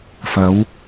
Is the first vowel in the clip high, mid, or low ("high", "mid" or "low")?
low